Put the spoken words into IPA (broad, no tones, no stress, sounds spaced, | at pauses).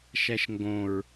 ʃ æ ʃ ŋ ɡ õ ɹ